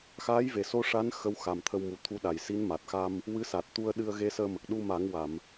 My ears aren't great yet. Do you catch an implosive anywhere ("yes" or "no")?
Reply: yes